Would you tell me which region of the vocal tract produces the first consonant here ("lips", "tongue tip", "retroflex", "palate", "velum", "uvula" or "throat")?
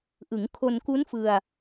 throat